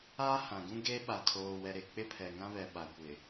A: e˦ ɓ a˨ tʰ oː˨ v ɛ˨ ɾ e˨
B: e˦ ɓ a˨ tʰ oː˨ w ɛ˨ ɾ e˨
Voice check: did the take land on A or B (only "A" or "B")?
B